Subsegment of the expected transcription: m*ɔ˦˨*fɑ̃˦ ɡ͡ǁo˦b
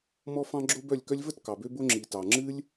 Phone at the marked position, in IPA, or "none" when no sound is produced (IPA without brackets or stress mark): ɔ˦